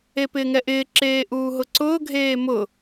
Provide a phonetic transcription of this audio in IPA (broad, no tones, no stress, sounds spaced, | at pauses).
e p ɪː ŋ ɛ ʔ ɪː ǁ eː ʔ uː ɦ ʊ ǀ ʊː ɡʱ eː m ʊ